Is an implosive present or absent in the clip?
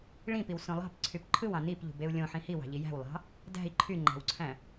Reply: absent